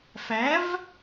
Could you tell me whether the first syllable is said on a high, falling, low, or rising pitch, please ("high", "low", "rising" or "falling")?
rising